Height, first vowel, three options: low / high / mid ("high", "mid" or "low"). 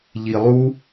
high